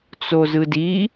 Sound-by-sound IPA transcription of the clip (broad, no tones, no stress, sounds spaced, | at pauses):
t͡s o z ɯ d i